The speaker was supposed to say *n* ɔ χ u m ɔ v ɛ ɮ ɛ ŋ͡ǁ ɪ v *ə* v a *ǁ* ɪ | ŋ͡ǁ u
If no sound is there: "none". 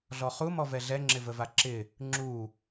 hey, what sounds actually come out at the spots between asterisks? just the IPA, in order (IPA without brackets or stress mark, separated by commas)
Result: ɮ, ə, ǁ